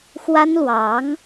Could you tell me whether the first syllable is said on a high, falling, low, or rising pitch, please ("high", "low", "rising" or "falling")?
high